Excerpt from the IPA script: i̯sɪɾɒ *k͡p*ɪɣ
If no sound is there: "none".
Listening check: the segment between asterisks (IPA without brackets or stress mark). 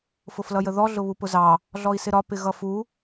p